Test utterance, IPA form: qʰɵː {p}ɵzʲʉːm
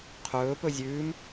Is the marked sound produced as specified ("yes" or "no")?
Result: yes